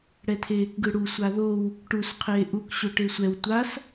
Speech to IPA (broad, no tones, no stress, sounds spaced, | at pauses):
ɽ ɛ tʰ eː k ɡ ɯ ɽ u sʷ a ð o w | ʈ u s qʰ eː ʔ u k ɕ o ʈ e sʷ ɛ w tʷ a s